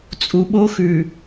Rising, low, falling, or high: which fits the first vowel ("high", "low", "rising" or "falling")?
low